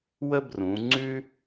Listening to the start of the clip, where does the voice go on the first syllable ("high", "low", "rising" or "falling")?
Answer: high